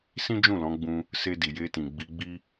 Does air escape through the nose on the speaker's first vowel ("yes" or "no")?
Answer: yes